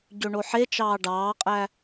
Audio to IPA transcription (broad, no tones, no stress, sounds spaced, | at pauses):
ɟ ø ɳ o ħ e t͡ʃ ɑː ɖ ɑː qʼ æ